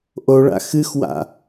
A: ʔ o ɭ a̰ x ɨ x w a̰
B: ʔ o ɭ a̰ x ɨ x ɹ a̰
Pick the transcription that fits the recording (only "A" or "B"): A